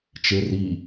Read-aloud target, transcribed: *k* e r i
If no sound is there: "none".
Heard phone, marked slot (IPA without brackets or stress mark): t͡ʃ